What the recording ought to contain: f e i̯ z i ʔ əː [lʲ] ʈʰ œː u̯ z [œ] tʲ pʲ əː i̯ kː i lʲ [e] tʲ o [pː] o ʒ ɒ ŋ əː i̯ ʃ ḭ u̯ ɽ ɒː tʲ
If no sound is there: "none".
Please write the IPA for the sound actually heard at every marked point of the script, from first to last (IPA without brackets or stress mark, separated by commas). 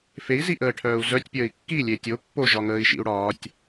none, œ, e, pː